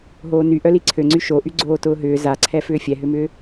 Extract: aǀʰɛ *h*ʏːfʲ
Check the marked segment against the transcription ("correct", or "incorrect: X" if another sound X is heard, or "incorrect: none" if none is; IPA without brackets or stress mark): incorrect: f